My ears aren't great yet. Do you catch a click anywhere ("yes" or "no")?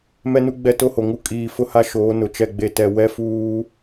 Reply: no